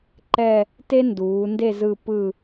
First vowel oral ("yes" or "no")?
yes